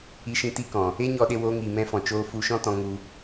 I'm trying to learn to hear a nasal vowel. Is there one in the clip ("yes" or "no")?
yes